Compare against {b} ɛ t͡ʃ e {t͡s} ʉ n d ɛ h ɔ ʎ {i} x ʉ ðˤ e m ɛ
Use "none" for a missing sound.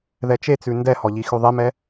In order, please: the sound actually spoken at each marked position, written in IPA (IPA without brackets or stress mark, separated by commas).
ð, t͡s, i